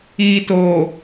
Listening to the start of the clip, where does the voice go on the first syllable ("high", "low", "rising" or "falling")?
low